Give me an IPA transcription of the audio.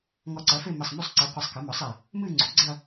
ŋɔ˧˩ǀɐ˩˥fe˥˧ mɘ˧˩sˤmu˥˧sˤǀi˩˥ qʷɨ˧˩sˤkɘ˩˥mɔ˩˥sˤ e˧˩ | mɨ˥˧ ŋ͡ǀo̤˩˥ɡ͡ǀɐ˥˧

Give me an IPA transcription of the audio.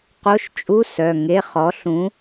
qo˧˥˧ʃt͡ʃʼu˧˥˧sœ˩˧˩ ŋe˧˥˧χɔ˨˥ɬũ˨˥

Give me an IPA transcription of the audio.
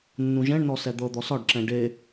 nːũʒɛ̃ɳnɔ sɛd̪ɤd̪ɔ sɒɖǁɛ̃ ɖe

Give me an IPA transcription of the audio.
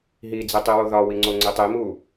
ɦid͡zitˤiwo ðɒwiŋ͡ǀoŋ͡ǀi tˤimu

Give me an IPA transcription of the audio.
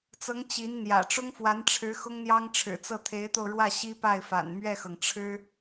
t͡sɤ˧˥ŋ t͡ɕi˧˥n n̪jä̰˨˩ ʈ͡ʂʊ˥ŋfwa˧˥nʈ͡ʂʰɻ̩˧˥ xʊ˥ŋn̪jɑ˥ŋʈ͡ʂʰɻ̩˨˩t͡sɤ˥˩ t̪ʰe˧˥ɪ̯t̪o˧ʊ̯ɻwä˥˩ ɕi˥pa˥˩ɪ̯fa̰˨˩n mɥɛ˥˩xɤ˩ŋʈ͡ʂʰɻ̩˥

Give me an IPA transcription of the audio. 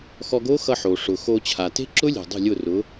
xɔ˧ɡo˦˥ xʌ˧ħo˩ ʂʊ˩xo˧ t͡ɕʰa˩te̤˦˥ǁʊ˦˥lʲe̤˩ dˤo̤˥˩lʲʊ˥˩rʊ˨˥

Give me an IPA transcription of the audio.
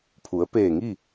pʰu˩˧ə̯peː˧˩ŋi˥˨

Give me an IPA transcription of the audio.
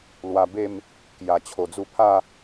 lwa˧be˥˧m | kja˨˩t͡ɕʰo˨˩ d͡zu˧pʰa˥˧

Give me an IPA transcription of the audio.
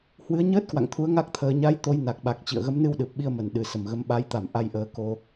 hwɨ˨˦ə̯ɲəː˦˥t̚kwa̰˧˨ŋt̪ʰu˨˦ə̯ ŋa˦˥k̚t̪ʰəː˧ ɲa˨˦j t̪o˨˦j na˨˩k̚ɓa˨˩k̚ t͡ɕḭ˧˨ə̯ɣə˨˦mnɨ˧wɗɨ˨˩p̚ ɓi˧ə̯mə˨˩n ɗɨ˨˩sə˧˩mɣə˨˦m ɓa˨˦jt̪a˧˩m ʔa˧jʔəː˨˦ ko˧

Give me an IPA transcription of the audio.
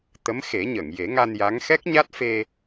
t̪ə˧˥mxe˨˩˦ɲə˨˩˨ŋ je˨˩˦ŋa˧n ja˧˥ŋ xɛ˦˥k̚ɲa˦˥t̚fe˧

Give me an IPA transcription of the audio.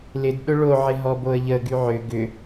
lɪd ɗʊɭoʕɪ ɦɔboə̯ʎə ɡyʕʏ ɡʏ

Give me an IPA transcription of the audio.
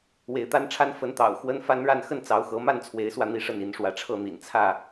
we˨˦ɪ̯t̪a˦nʈ͡ʂʰa˦n fə˨˦nt̪ɑ̰˨˩ʊ̯ xwə˦n fa˦nɻa˥˨n xə˥˨nt͡sɑ˨˦ʊ̯xɤ˨˦ma˥˨n t͡sʰwe˨˦ɪ̯swä˧ n̪i˦ʂə˥˨ni˨˦nʂwä˨˦ ʈ͡ʂʰɤ˥˨n̪ḭ˨˩nt͡sʰä˥˨

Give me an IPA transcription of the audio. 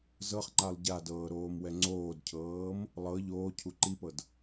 zɤχŋ͡ǃalˠ ɟadɤːɾoːmwɛ ŋ͡ǀoːdcʰɤːm | lˠɤ ʎoːcʰu ǃipɤd

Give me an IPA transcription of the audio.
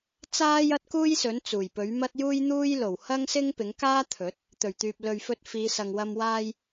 t͡saː˥jɐ˥t̚kuː˥jsɵ˨˥n t͡suː˨˩jpɵ˨˥ɥmɐ˥t̚ juː˥jn̪uː˥j lo˨˩w hɐ˥ŋsɪ˥ŋpɪ˨˥ŋkaː˥ t̪ʰɵ˨˥t̚ | t̪ɵ˨˩ɥt̪yː˨p̚lɵ˨ɥ fɵ˧t̚fiː˨˧sɐ˨ŋwɐ˧m waː˧j

